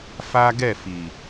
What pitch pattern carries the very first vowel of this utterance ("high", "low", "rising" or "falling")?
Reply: high